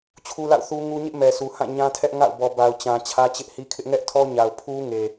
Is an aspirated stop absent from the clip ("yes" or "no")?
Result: no